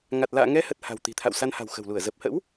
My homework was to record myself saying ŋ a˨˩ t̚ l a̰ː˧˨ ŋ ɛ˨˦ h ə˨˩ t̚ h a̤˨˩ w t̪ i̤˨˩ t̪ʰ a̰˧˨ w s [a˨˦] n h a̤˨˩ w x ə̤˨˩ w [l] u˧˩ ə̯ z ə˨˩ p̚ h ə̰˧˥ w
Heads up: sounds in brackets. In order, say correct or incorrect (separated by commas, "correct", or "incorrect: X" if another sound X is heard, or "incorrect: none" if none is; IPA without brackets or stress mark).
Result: incorrect: a˧, correct